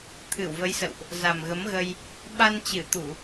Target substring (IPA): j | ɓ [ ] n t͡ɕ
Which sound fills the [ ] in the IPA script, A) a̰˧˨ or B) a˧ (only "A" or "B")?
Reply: B